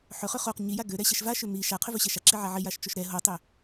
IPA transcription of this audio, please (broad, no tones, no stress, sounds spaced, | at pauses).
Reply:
ħ ɵ χ ø χ o q ɲ i j a ɡ ø ɾ ɛ ɕ ɛ ʃ v a ʃ ø m i ʃ a qʰ ʏ v ɵ ɕ ɛ ʃ a ǁ i ʕ a ʕ i j a ʃ t͡ʃ o ʃ ɾ ɛ ɦ o tˤ ø